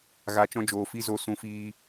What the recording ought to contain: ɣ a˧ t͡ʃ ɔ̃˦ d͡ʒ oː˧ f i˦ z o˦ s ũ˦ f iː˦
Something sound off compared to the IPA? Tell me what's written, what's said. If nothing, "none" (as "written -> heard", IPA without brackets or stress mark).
none